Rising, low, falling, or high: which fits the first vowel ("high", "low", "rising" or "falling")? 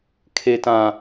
low